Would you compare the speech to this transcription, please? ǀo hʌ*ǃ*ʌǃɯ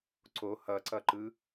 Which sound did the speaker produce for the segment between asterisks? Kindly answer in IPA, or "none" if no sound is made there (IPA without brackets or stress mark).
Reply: ǀ